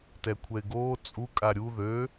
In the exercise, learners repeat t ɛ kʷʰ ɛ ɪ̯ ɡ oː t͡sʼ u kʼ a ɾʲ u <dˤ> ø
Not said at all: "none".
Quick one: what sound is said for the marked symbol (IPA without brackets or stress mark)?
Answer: ð